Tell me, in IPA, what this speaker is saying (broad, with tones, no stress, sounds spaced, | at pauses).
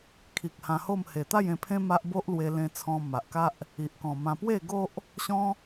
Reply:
kʰ i˨ k̚ h ã˧ h o˥˧ m h e˨˩ t̪ a˥˧ j ẽ˧ pʰ ẽ˦ m a˦ ʔ b o˦ ʔ l w e˧ l ẽ˧ t͡sʰ ɔ̃˧ m a˨ ʔ k a˦ ʔ | i˨ ʔ k ɔ̃˨˩ m ã˧ p w e˥˧ ɡ o˦ ʔ | ɕ ɔ̃˦